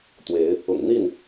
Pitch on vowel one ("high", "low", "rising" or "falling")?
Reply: rising